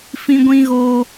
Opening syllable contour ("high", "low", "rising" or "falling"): high